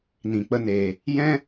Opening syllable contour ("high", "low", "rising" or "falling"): low